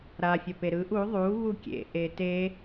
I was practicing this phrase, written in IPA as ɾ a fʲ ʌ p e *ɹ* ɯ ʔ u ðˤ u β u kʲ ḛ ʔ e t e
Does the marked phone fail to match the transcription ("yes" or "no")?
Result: yes